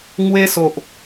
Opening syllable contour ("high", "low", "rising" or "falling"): high